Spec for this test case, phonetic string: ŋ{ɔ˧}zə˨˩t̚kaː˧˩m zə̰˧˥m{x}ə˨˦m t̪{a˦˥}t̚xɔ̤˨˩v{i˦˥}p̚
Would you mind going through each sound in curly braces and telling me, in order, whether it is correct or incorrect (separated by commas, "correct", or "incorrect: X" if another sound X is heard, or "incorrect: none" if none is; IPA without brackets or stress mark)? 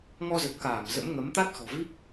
correct, incorrect: ŋ, correct, correct